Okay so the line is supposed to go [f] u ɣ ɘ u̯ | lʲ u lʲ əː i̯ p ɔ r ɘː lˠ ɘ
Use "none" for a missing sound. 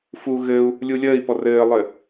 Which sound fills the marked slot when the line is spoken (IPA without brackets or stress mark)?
f